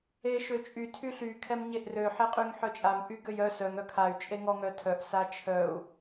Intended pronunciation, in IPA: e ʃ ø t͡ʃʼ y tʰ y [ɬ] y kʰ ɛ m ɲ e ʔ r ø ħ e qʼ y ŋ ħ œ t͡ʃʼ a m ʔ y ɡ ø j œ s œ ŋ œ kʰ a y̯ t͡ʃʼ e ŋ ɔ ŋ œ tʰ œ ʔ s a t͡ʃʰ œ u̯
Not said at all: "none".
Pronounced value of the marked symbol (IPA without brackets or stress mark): ɬ